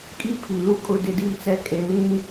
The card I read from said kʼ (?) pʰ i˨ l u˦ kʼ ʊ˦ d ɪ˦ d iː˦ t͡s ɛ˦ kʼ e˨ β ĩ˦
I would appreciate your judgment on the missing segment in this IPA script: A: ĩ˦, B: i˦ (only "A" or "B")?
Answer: B